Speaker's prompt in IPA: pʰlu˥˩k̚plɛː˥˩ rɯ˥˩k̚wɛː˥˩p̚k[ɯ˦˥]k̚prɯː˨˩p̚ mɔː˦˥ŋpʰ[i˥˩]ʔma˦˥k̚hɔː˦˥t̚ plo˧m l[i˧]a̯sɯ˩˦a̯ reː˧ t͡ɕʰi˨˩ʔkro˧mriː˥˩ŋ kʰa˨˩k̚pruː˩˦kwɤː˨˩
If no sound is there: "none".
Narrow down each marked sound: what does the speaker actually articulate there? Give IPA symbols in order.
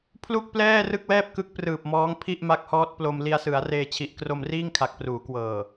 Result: ɯ˦˥, i˥˩, i˧

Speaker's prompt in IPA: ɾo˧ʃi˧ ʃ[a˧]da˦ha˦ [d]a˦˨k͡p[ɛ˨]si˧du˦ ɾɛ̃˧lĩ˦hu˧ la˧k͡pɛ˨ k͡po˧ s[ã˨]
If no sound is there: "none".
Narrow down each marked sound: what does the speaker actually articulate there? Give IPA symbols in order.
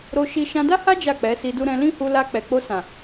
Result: ã˧, d͡ʒ, ɛ˨˦, ã˨

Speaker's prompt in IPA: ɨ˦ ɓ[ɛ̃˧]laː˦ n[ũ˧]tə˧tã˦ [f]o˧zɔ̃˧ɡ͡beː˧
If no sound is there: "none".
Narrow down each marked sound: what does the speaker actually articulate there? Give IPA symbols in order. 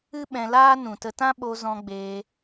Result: ɛ̃˧, ũ˨, ɓ

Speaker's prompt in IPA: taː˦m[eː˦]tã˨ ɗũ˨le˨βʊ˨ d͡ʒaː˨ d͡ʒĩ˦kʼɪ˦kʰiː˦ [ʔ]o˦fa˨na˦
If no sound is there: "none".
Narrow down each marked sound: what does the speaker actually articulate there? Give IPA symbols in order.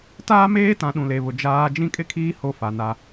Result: eː˦, h

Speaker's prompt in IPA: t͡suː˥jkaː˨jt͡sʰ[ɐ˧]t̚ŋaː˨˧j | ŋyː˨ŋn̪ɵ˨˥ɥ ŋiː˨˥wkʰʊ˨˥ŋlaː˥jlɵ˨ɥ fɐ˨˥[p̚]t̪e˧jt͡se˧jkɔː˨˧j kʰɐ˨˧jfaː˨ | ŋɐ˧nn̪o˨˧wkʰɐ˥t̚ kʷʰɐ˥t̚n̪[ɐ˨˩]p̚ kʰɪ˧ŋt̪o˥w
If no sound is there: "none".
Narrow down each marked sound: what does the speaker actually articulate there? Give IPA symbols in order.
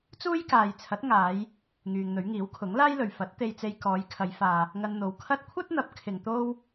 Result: ɐ˨˥, t̚, ɐ˨˥

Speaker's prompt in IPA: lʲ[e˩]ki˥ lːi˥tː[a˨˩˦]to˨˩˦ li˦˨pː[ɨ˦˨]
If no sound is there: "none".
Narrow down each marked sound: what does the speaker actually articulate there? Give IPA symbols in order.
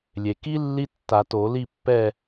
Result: e˩, a˨˩˦, ɛ˦˨

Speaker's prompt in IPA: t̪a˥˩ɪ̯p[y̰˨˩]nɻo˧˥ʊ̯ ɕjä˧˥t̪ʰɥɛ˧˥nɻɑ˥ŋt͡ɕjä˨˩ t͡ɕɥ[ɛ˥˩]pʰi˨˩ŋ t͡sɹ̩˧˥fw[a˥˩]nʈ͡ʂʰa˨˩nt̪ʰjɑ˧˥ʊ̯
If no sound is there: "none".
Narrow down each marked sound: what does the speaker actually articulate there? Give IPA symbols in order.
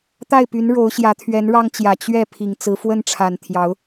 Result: y˧˥, ɛ˥˩, ə˥˩

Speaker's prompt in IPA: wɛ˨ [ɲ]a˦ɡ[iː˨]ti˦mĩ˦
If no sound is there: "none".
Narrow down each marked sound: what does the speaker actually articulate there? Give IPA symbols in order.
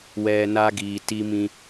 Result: n, iː˨

